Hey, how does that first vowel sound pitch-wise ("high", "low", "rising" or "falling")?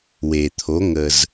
low